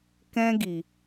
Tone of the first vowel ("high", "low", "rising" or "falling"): high